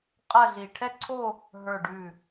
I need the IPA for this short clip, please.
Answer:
qʼ ɐ˥˧ ɮ i˧˩ ʈʰ ɛ˥˧ ǀʰ o˥˧ | ɦ ə˞˧˩ ɖ ʉ˧˩

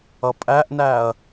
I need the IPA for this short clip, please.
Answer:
ʌ pʼ æ ʔ n æ ɐ̯

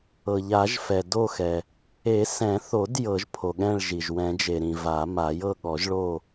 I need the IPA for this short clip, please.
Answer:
ɤ˩ ʎ a˨˩˦ ʒ f ɛ˩ d o˥˨ x ɛ˩ | e˨˩˦ s ɛ̃˨˩˦ θ o˨˩˦ d j ɤ˨˩˦ ʒ pʰ o˩ ɠ ɛ̃˥˨ ɭ ʒ i˩ ʒ w ɛ̃˨˩˦ d͡ʒ e˩ ɾ ĩ˩ v a˨˩˦ m a˨˩˦ j ɤ˥˨ ɠ ɔ˨˩˦ ʒ ɭ o˥˨

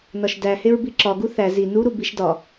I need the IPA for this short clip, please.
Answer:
n ɒ ʃ d æ h e ɹ b i ǁ ɒ ɡ u θ æ z i n u ɾ u b i ʃ d ɒ

